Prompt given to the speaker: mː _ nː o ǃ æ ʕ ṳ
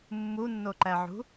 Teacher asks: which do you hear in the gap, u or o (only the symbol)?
u